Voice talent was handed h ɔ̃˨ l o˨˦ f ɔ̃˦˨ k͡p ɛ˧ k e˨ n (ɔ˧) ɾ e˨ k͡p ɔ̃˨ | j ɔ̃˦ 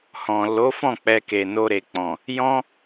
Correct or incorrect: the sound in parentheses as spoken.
incorrect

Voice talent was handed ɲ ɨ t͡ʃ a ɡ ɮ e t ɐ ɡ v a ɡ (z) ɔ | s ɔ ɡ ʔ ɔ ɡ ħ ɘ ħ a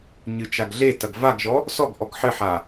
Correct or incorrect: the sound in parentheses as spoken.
incorrect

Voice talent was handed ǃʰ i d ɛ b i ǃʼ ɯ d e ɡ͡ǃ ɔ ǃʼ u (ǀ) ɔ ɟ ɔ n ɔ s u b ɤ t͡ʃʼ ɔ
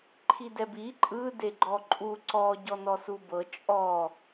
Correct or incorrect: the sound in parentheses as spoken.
correct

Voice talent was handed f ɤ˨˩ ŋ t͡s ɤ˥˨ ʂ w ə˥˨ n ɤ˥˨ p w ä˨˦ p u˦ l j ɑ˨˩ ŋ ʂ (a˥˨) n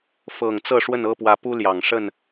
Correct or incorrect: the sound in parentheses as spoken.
incorrect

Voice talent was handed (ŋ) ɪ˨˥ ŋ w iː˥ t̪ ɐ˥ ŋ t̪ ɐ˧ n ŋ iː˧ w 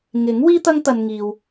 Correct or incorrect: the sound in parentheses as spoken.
correct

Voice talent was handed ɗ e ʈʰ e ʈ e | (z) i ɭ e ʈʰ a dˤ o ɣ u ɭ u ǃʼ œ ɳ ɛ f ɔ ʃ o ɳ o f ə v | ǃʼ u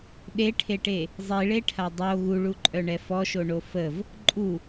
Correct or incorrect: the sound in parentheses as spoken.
incorrect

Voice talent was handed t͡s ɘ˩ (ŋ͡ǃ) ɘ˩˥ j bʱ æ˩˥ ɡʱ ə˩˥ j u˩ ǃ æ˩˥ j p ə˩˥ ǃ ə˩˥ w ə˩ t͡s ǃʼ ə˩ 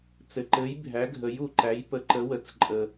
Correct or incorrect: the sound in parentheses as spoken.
incorrect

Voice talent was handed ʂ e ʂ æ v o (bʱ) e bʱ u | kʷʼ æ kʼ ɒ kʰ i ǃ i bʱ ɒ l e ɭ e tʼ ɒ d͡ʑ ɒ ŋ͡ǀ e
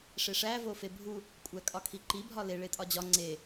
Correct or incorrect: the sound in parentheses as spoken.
incorrect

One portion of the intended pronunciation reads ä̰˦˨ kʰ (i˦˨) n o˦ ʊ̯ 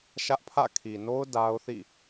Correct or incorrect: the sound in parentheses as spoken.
incorrect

